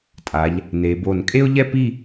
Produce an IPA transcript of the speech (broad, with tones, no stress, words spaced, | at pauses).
tʼa˩˧ʎ | ne˩˧bo˧˩n kʼe˥ʊ̯ʎɛ˥pi˥˧